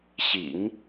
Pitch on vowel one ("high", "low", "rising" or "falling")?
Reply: low